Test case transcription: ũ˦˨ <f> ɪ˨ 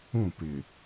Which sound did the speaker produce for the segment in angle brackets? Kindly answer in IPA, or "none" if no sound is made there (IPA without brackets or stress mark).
p